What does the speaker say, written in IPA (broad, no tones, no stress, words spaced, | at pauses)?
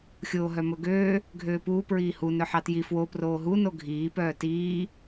xʲoːɦœmɵɡøː | ɡʱøːpuː pɹiːhu nœħɑtji fwo proːɦu noɡʱiː pœːtiː